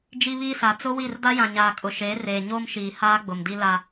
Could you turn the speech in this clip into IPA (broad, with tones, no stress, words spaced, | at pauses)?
d͡ʒi˦βiː˦sa˨ t͡sʊ˦wi˦˨r da˦jã˨ɲaː˨ kʼʊ˨ʃeː˨˦reː˨ ɲoː˦mʃiː˨ haː˦ɡ͡bʊ˨mdi˦ la˦